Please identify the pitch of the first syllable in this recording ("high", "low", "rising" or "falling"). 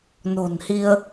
low